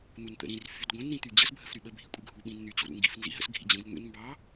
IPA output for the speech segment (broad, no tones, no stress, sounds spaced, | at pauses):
n̪ u n t̪ ə̰ ɾ ĩ r f y d ɡʷ ə̃ n ɾ ĩ t̪ y d͡ʑ ə s bʱ ə f ɾ y ɓ ə bʱ i kʷʼ ə̰ ɡʱ u ɓ ĩ n n̪ y t͡ɕ ṵ ɾ ṵ ŋ ɡ ḭ f n z ḭ ɦ ə̰ s ɡʱ ḭ d͡ʑ ə̃ ɡ n̪ ṵ n m b ɑ